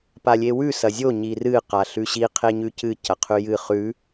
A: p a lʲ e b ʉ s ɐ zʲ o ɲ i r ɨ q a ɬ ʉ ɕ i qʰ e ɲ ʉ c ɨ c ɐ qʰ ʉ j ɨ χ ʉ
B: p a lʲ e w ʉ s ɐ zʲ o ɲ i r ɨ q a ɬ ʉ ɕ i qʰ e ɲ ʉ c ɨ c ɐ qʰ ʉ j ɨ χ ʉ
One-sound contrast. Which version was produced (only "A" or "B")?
B